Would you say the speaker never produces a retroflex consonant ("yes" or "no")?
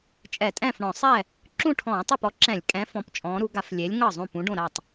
no